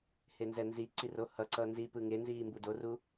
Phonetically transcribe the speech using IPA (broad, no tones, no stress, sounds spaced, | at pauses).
h e n z ɛ n z i ǀ i r o h ʌ ǀ ʌ n z i p ɯ ŋ e n z iː m b u d o r u